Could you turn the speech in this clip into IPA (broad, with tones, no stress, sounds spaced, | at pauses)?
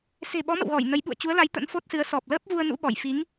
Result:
s e̤˨˩ ɓ ɔ˨˦ m ə̰˧˨ w ɣ ɔ˧˩ j n ə˨˦ j ɓ ṵ˧˨ ə̯ t͡ɕ u˨˦ ə̯ l a˨˦ j t̪ ə̰˧˥ n f o˦˥ t̚ s ɨ˨˦ ə̯ s ɔ˨˩ p̚ l əː˦˥ p̚ v u˧ ə̯ n ṵ˧˥ ɓ ɔ˧˩ j f i˨˦ ŋ